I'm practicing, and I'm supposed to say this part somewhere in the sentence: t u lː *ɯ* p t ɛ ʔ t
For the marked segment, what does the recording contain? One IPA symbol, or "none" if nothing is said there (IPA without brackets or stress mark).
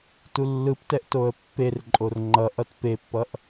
ɯ